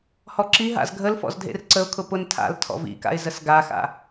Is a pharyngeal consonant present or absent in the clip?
absent